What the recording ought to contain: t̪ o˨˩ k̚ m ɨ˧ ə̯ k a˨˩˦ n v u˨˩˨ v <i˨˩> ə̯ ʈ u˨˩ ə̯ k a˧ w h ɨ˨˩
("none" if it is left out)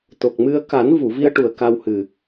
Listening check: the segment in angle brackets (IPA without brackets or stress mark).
i˧